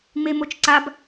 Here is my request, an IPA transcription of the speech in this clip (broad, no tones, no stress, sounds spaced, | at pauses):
ŋ͡m e m o t͡ʃ ǀ a b